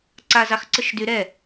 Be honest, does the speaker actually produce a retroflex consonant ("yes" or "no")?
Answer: no